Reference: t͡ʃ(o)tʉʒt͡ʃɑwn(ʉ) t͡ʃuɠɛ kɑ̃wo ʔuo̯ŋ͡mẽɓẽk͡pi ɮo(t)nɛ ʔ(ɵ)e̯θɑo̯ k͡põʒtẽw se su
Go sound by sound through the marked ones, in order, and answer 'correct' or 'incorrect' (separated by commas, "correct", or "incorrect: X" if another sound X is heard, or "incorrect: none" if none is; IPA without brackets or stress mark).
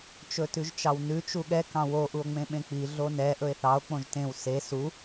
incorrect: ɵ, correct, incorrect: none, correct